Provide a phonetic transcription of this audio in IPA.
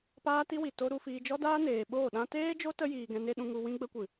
p aː˦ t i˦ w i˨ t o˦ ɾ u˧ f iː˧ d͡ʒ ɔ˦ d aː˦ n eː˨ ɓ oː˦˨ ɗ ã˦ t eː˦ d͡ʒ o˦ t ə˧ j iː˨ ɡ ɛ̃˧ n e˦ ɗ ũ˧ ŋ u˧ w ĩ˧ ɡ͡b ə˧ kʷ ɨ˨

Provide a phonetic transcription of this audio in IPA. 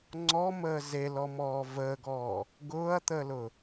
ŋ͡ǀ ɔ m əː z e l ɔ m ɔː v əː ɡ ɔː | ɡ ʊː ɐ̯ t̪ əː l ʊ

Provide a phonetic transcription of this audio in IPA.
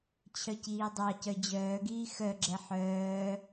t͡ɕʰ œ c iː dˤ ɑ c œ d͡ʑ œː ɡ iː x œ ɡ͡ǁ ɛ ħ œː

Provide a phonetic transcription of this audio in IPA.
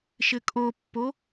ʃ ɘ kʼ o pː o

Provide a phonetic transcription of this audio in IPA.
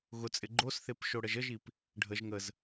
ɣ ʊ t͡sʼ ɪ ɡ͡ǃ o s θ e p ʃ o ɽ ə ʒ ə ʒ i p | ɖʱ ə ʒ ŋ ə z

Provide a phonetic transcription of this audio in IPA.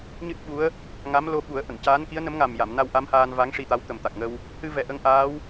ɲ ɨ˦˥ t̚ ɓ u˧˥ ə̯ | ŋ a˧˥ m l o˧ ɓ u˨˩˦ ə̯ ʔ ə˨˩˨ ŋ c aː˧˥ n k i˧˥ ə̯ n ə˧˥ m ŋ a˨˩ m j a˨˩˨ m n a˧ w ʔ a˧˥ m h aː˧ n v a˧˥ ŋ ʂ i˧ t̪ a˧˥ w t̪ ə˨˩ m t̪ a˨˩ k̚ ŋ ə˧ w | h ɨ˧ v ɛ˨˩ ʔ ə˧ ŋ ʔ aː˧˥ w

